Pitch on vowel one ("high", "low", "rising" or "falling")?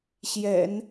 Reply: low